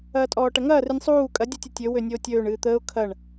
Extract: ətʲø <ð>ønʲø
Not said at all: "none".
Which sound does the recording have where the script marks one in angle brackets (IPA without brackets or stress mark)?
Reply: w